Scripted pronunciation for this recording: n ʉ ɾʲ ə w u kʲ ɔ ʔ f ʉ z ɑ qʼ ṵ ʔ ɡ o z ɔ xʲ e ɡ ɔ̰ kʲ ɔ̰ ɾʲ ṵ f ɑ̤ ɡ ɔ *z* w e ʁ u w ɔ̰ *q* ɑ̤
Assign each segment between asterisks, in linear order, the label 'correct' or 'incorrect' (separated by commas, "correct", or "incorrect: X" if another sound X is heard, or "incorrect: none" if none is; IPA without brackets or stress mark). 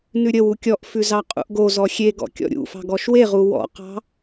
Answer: incorrect: ʃ, correct